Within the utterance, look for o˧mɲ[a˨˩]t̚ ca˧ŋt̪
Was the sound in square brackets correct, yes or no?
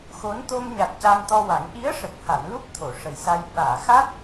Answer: yes